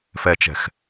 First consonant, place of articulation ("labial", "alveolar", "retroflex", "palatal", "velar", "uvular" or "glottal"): labial